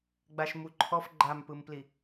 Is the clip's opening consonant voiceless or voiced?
voiced